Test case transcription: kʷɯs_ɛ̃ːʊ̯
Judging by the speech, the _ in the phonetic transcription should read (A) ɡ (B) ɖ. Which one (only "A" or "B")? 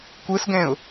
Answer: A